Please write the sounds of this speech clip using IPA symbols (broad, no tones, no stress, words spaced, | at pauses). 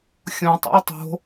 xʲõ tˤo̰i̯tˤo̤